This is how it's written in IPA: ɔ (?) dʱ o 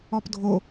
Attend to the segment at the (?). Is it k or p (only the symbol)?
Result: p